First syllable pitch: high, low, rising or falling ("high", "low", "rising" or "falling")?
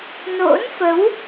rising